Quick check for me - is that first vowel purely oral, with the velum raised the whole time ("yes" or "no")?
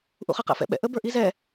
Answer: yes